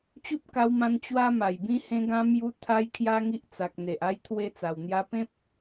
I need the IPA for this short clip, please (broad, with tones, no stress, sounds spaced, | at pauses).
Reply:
t͡ɕ u˦ p̚ k a˧ w m ã˧ n t͡ɕ w a˦ m a˨˩ j b ĩ˧ h ẽ˧ ɡ ã˧ m j u˧ t̪ʰ a˦ j kʰ j a˦ ŋ i˦ ʔ t͡s a˨ k̚ n̪ e˨ ʔ a˧ j t̪ʰ w e˧ t͡s a˨˩ w n̪ j a˧ p ẽ˦ p̚